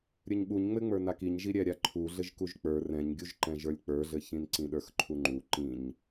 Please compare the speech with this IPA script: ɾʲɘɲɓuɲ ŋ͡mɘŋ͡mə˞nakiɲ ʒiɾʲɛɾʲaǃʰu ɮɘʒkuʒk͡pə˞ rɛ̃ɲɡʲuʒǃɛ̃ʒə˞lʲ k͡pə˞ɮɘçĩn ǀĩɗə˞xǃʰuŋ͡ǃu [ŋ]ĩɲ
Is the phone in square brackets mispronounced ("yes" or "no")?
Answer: yes